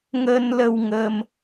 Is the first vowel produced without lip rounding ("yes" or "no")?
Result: yes